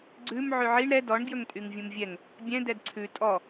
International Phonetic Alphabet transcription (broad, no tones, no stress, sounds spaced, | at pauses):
ɡ͡ǀ ʉ m ʕ ʉ ʕ i ɳ ɾ ɛ d ɔ ɳ ɡ j ɵ ŋ tʼ y ŋ vʲ ũ m vʲ ɛ ŋ | bʲ ɛ̃ d ɛ d ǀʰ ʉ tʼ ɔ